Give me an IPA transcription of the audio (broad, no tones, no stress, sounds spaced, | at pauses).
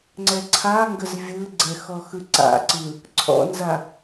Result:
ŋ͡ǀ ɛ ǀʰ a ŋ ɡ ə z vʲ ɯ ɡ͡ǀ ɛ x ɔ x ɯ ǀ a̰ ǀ ɯ | ǀʰ ɔ̰ n z a